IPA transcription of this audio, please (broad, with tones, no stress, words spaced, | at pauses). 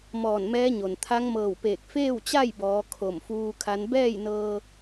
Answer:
mɔː˧˩nmɛː˧˥ɲo˩n t̪ʰa˧˥ŋmɤː˧˩wpeː˧˩k̚ feː˥˨wt͡ɕa˥˨jbɔː˩˧ kʰo˧˩mfuː˧kʰa˧˥n bɛː˥˨jnɤː˧